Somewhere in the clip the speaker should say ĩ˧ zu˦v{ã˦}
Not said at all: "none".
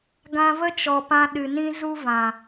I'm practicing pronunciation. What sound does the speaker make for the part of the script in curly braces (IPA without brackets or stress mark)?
ã˨